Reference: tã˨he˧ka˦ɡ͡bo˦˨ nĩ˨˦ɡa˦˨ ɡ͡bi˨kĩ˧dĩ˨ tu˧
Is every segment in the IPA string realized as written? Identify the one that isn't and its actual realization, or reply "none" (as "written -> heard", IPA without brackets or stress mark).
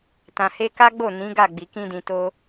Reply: u˧ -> o˧